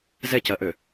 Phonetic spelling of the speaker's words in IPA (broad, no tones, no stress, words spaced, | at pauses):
zɛcɜʔø